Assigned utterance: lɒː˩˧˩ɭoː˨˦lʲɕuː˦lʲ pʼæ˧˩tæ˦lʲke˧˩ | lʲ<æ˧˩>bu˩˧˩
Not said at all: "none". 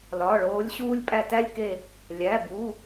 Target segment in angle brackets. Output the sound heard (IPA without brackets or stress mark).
æ˩˧˩